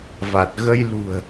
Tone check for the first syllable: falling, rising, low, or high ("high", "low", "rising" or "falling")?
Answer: low